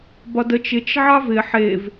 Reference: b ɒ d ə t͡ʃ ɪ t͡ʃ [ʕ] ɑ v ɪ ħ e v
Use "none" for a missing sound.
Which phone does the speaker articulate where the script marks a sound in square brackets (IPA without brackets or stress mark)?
ʕ